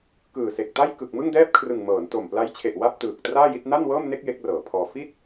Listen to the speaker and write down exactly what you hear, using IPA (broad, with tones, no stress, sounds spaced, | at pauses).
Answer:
k ɯː˨˩ s e˨˩ k̚ t a˥˩ j k ɯ˨˩ k̚ m ɯ˥˩ ŋ d ɛː˥˩ p̚ kʰ r ɯ˨˩ ŋ m ɤː˩˦ n t o˨˩ m p l a˦˥ j t͡ɕʰ e˨˩ ʔ w a˥˩ p̚ t ɯː˨˩ k̚ t r aː˥˩ j i˥˩ t̚ n a˥˩ n w ɤː˥˩ m n e˥˩ k̚ j e˦˥ k̚ r ɤː˩˦ pʰ ɔː˧ f i˦˥ t̚